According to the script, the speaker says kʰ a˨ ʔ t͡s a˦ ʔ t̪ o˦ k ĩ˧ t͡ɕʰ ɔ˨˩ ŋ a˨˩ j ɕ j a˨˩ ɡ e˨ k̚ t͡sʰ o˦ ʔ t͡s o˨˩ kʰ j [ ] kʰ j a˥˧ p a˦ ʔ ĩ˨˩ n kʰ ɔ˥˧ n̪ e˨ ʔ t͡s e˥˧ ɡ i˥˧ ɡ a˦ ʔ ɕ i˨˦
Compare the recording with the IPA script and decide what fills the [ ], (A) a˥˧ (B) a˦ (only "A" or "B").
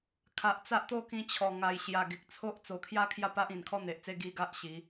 A